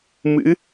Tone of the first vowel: rising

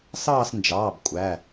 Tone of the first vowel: falling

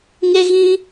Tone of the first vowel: high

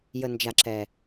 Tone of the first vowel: low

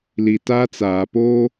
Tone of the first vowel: low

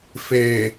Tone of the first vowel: low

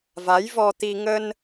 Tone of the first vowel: rising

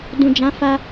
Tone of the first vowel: low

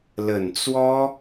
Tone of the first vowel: low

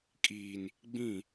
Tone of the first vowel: low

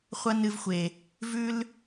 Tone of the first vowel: high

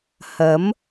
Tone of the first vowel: rising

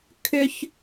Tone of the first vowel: high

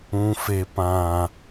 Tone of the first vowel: low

